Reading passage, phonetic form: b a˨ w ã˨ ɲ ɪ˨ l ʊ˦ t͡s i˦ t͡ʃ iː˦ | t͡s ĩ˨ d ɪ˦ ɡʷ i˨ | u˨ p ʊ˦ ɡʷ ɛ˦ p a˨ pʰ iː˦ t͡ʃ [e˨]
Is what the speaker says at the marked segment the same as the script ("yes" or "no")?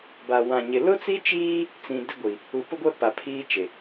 yes